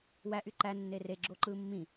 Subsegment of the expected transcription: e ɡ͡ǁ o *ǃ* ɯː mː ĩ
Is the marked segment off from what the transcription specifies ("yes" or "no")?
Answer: no